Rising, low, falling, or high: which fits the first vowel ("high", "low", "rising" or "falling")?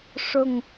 falling